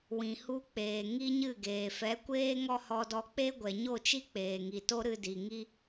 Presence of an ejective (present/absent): absent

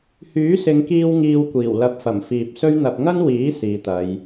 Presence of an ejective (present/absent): absent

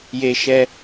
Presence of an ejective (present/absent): absent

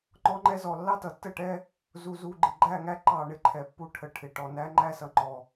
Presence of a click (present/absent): present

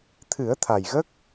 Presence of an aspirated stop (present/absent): present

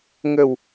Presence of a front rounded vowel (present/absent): absent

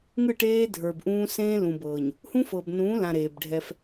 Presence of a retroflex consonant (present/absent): present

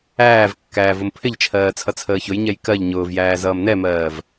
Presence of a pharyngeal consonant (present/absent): absent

